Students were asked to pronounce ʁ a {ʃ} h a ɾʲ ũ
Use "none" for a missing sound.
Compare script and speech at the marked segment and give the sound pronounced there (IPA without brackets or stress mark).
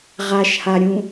ʃ